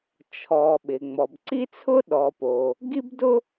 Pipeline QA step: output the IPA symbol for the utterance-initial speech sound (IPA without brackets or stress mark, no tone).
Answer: t͡ʃʰ